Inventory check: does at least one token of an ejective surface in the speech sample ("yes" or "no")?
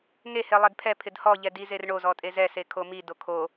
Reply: yes